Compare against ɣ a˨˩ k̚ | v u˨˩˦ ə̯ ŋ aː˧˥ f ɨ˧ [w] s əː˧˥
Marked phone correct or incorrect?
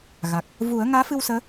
correct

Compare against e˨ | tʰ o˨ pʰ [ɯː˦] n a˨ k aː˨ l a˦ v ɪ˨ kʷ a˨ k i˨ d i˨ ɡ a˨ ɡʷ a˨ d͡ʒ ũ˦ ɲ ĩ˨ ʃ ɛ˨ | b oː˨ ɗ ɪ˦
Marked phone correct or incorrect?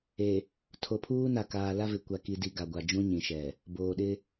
incorrect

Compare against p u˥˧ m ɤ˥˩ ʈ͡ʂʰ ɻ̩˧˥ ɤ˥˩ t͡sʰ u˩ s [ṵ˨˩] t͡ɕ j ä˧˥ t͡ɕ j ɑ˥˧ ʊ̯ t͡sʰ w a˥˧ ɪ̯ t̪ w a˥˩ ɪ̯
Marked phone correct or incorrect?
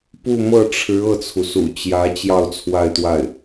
correct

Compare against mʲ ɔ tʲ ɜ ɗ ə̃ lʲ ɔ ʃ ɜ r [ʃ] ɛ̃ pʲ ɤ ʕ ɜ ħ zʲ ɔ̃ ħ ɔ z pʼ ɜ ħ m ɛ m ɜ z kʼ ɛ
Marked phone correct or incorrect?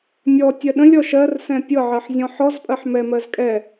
incorrect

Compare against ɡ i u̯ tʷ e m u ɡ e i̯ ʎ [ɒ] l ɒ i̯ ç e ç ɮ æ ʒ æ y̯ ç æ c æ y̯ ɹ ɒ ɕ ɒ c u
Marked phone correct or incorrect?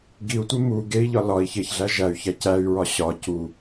correct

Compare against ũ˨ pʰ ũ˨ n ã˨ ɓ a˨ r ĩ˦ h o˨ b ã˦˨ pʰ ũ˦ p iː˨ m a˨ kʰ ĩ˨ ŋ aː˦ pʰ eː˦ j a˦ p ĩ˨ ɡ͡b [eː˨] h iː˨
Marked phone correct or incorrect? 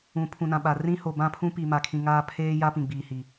incorrect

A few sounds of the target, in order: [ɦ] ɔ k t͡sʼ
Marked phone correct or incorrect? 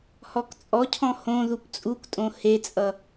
incorrect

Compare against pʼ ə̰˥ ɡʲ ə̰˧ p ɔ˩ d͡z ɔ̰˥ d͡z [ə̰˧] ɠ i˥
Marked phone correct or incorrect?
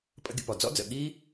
incorrect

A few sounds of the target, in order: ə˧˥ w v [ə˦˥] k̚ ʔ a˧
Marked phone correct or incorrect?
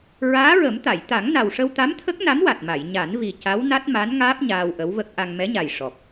correct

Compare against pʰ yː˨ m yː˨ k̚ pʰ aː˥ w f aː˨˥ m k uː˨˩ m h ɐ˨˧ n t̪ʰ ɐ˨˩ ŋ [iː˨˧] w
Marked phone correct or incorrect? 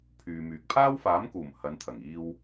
incorrect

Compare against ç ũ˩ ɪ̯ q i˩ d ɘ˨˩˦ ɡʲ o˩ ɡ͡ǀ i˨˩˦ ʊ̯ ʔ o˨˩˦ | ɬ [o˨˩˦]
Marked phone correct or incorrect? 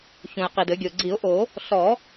incorrect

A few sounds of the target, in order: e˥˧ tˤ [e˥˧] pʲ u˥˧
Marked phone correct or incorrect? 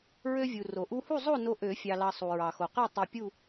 incorrect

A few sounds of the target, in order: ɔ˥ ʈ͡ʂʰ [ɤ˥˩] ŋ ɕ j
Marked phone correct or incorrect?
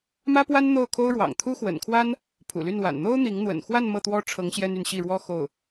incorrect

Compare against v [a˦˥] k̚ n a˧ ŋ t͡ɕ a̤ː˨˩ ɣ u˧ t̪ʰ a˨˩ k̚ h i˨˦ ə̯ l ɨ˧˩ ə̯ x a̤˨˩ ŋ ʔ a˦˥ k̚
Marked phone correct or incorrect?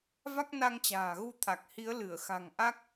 correct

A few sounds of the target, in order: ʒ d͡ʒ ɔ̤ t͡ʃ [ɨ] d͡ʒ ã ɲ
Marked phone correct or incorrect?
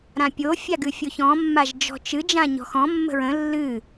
correct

